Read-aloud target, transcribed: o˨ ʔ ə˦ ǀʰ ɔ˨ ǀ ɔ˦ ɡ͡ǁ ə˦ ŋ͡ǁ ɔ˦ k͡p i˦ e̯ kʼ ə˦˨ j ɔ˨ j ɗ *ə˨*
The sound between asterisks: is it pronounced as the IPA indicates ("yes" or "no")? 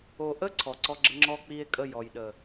yes